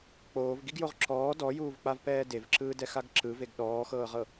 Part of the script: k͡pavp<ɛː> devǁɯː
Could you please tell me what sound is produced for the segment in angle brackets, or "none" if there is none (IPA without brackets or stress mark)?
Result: ɛː